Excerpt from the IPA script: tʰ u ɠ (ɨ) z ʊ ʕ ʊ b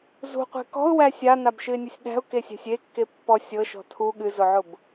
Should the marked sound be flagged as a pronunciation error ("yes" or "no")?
no